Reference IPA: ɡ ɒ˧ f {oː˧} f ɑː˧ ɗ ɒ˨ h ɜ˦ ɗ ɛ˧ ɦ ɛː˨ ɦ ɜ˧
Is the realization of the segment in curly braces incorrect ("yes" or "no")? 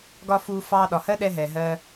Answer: yes